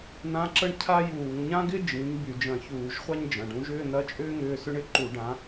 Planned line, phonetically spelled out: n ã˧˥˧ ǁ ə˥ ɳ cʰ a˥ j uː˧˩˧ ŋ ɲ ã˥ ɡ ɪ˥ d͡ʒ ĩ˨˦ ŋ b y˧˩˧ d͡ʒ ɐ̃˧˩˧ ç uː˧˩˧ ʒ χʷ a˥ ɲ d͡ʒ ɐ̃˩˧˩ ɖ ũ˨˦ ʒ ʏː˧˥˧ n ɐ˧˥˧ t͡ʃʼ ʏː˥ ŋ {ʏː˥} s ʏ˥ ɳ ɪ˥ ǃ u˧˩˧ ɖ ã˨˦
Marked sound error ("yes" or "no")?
yes